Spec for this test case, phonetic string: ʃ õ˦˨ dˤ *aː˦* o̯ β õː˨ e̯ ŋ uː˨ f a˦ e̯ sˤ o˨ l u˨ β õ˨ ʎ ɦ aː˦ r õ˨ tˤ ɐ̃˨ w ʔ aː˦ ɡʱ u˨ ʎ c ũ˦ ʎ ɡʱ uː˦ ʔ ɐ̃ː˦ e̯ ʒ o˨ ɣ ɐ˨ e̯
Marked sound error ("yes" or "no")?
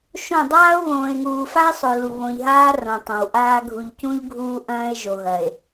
no